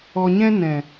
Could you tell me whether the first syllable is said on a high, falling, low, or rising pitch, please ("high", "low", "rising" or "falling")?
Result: low